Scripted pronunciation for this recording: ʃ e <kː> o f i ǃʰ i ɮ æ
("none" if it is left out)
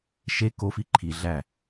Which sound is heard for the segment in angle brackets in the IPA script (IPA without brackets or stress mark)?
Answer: k